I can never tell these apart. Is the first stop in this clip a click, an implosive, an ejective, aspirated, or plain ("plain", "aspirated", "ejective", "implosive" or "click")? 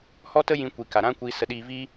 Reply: plain